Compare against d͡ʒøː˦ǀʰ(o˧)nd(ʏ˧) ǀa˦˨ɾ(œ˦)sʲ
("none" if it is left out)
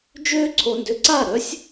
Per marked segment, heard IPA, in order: o˧, ʏ˧, œ˦

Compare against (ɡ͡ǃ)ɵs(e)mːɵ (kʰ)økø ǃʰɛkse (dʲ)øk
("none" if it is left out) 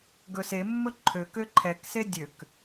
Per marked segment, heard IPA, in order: ɡ, e, ǃʰ, dʲ

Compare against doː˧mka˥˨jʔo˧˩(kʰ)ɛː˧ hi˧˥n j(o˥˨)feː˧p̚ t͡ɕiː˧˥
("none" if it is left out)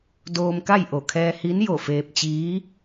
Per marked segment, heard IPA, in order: kʰ, o˧˩

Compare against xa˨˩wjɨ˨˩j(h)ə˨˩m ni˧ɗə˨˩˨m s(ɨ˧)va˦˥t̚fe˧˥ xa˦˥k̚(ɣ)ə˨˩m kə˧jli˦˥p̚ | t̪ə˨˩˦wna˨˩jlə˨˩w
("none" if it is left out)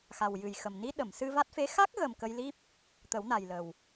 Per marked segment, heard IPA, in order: x, ɨ˧, ɣ

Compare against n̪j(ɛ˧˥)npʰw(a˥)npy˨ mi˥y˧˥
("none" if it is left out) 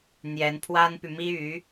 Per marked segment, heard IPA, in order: ɛ˧˥, a˥

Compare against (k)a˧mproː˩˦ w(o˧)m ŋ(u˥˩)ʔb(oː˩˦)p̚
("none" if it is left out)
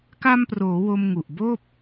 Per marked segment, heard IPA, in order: k, o˧, u˨˩, oː˥˩

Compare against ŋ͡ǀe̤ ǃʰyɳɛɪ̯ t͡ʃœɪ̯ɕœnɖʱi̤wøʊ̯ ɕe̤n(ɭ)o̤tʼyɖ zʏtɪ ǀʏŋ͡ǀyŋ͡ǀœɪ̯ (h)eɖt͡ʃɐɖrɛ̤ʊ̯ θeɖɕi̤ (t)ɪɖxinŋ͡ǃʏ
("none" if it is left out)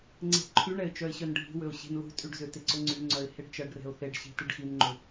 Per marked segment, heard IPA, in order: l, h, t

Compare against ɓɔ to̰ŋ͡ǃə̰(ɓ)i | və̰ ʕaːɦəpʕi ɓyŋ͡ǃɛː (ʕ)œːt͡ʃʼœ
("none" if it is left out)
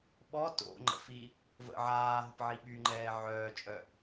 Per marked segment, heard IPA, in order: f, ʕ

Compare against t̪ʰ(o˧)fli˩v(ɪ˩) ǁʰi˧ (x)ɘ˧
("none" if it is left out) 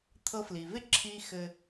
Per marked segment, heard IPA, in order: ɤ˧, ɪ˥, x

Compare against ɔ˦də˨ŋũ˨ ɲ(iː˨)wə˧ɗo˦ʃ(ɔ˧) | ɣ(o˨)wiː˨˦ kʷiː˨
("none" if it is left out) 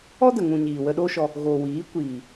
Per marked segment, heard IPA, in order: iː˨, ɔ˧, o˨

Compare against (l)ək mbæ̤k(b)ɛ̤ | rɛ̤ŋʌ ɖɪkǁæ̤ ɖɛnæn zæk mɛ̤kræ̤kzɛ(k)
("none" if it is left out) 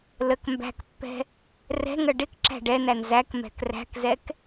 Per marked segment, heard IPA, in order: l, pː, k

